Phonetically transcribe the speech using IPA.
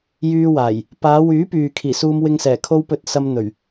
jyː˧waː˨˩j | paː˨˧wyː˨˥pyː˨ kʰiː˨˩suː˧mwɪ˧ŋsɛː˨˩ kʰo˧wpɵ˨˥t̚ sɐ˧mn̪ɵ˨˩ɥ

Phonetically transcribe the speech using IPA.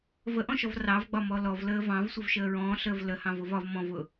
vəʔɔ̃ʃɔv rɑvɡ͡bɒmɔ lɔvləː vɑ̃vsʷəvʃəː ɹɔ̃ːɬəːv ləhɑ̃vʊv ɒv mɔ̃vʊ

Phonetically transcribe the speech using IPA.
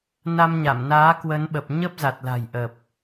na˧mɲa˧˩mnaː˨˦ kwə˨˦nɓə˨˩p̚ ɲə˦˥p̚za˨˩t̚la̤˨˩j ʔə˨˩p̚

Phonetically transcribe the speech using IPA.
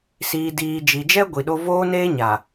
siː˨diː˨d͡ʒi˨d͡ʒɛ˦ ɡʷi˨ɗo˦ voː˦neː˦ɲa˨

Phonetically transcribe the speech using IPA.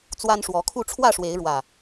t͡swa˦nʂwɔ˨˦kʰu˥˨ ʈ͡ʂʰwä˥˨ʂwe˨˦ɪ̯ɻwä˨˩

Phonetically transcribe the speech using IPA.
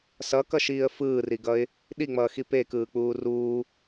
sʌkʌʃiːə̯ fɯːriɡʌɪ̯ | ɗiŋ͡mʌːxi pekɯːk͡puː ruː

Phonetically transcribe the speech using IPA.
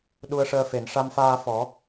ɗu˧ə̯ʂəː˧fe˨˩˨n ʂa˧mfaː˧fɔ˨˩˦

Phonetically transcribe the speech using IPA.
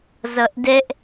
zʌʔdɛʔ

